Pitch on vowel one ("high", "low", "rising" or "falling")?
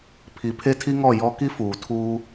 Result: rising